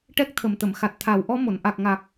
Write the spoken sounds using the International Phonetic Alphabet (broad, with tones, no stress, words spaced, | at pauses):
ʈɛ˦˥k̚t̪ʰə˨˩mt̪ə˨˩˨m xa˨˩t̚t̪ʰa˨˩˦w ʔɔ˧˥mo˨˩˨n ʔa˨˩k̚ ŋa˨˩k̚